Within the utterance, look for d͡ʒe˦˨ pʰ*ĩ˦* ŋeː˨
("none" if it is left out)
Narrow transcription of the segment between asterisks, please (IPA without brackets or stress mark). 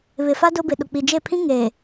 ĩ˦